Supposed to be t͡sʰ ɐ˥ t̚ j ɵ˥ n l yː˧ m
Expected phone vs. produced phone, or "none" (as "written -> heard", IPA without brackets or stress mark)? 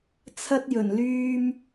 ɵ˥ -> ɵ˨˩